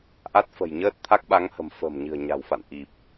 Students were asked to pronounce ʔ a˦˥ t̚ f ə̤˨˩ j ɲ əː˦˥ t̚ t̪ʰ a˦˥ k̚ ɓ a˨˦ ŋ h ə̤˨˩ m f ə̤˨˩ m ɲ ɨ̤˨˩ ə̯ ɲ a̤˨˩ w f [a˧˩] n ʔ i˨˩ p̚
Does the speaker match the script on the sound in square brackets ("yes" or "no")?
no